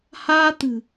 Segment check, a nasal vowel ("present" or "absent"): absent